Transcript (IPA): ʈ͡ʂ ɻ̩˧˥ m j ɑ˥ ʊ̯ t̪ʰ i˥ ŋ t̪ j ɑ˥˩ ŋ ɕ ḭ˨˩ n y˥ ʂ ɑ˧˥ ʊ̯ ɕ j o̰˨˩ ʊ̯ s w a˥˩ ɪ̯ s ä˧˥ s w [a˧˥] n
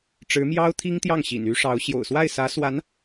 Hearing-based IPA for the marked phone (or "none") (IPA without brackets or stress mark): a˧˥